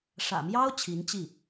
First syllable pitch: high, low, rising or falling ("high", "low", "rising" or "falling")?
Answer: low